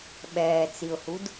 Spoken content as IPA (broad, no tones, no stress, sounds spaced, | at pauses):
ɓ ɛː t͡s i ʊ̯ h u d